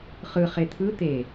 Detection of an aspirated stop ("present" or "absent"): present